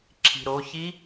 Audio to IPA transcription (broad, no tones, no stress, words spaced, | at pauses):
ǁʰi̤ɾoçi